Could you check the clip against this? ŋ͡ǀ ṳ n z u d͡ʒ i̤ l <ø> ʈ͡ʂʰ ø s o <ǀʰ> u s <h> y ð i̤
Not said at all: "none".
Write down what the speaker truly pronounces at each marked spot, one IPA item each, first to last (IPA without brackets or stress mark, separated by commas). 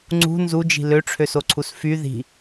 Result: ø, ǀʰ, f